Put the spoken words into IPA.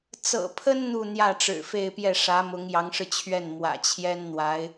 t͡s ɤ̰˨˩ pʰ ə˥ n n̪ u˥˧ n̪ j ä˥˩ ʈ͡ʂ ɻ̩˨˩ f e˥˧ ɪ̯ p j ɛ˥˩ ʂ ä˧˥ m ʊ˧˥ ŋ j ɑ˧˥ ŋ ʂ ɻ̩˧ t͡ɕʰ ɥ ɛ˥˩ n m w ä̰˨˩ t͡ɕʰ j ɛ˥ n n̪ w a˧˥ ɪ̯

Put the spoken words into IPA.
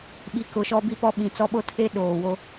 ɓ i˨ k ʊ˨ ʃ ɔ˦ b i˦ p ɔ˦ ɓ ĩ˨ t͡s ɔ˦ ɓ o˦ tʰ e˦ ɗ oː˨ w o˦

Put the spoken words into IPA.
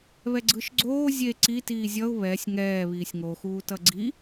β ɛ ɡ͡ǀ ɯ ʃ ɡ͡ǀ oː zʲ e ǀ i t iː zʲ ʌ ʊ̯ β ɛ sʲ ŋ ɛː β iː sʲ ŋ o x uː t ʌ ɡ͡ǀ i

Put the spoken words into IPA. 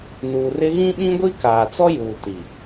n uː˨ r ɪ˦ ɣ ĩ˦ ɓ ĩ˦ ɡʷ i˦ k aː˨ t͡s ɔ˦ j uː˨ t i˨

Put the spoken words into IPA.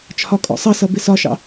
t͡ʃʰ ɒ kʼ ɔ̰ sˤ ʌ s ʌ b ɪ s ɒ ʃ ɑ̰

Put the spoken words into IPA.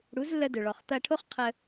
ɽ u˩˧ z lː ə˧ d ɵ˩ ɭ ɔ˩ χ t̪ ɐ˧ ʈʰ o˥ χ qʰ ə˧

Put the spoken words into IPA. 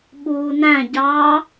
ɓ uː n æ̃ ɟ ɑ

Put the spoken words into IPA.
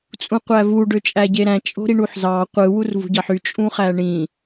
t͡sʼ ũ qʷ æ v u ɖ ø t͡ʃʼ æ ɟ e ɾ æ̃ t͡ʃʼ o̤ ɾ i ɳ u ħ z ɑ qʷ ɯ w u r v ṳ ɟ ɑ ħ y t͡ʃʼ ũ χ æ ɳ ĩ

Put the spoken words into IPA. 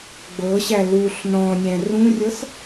ɡ͡b ɤ ɕ æ l u ɬ n ɔ̃ nʲ æ̃ r ũ rʲ ɤ s

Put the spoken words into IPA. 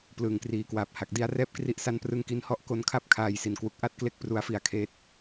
p l ɯː˨˩ ŋ k r iː˨˩ k w aː˨˩ p̚ h a˨˩ k̚ d i˧ a̯ r ɛː˥˩ p̚ k r i˦˥ ʔ s a˦˥ n p r ɯ˧ ŋ k i˧ n h ɔ˦˥ ʔ k o˧ n kʰ a˥˩ p̚ kʰ aː˨˩ j s i˨˩ n k w u˨˩ k̚ ʔ a˥˩ t̚ k l e˥˩ k̚ p r u˧ a̯ f i˧ a̯ kʰ eː˦˥ t̚

